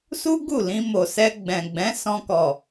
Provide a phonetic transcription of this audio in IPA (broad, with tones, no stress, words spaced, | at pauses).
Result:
su˦ ɡu˦˨lĩ˧mo˨sɛ˧ ɡ͡bɛ̃˨ ɡ͡bɛ̃˨˦ sɔ̃˧kɔ˨